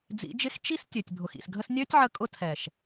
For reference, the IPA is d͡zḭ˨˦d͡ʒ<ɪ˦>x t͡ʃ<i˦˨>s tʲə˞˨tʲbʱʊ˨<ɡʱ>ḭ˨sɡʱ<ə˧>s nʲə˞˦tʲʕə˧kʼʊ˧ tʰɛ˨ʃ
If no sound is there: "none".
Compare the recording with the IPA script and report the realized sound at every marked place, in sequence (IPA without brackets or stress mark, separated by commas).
ɪ˦, i˦, x, ə˦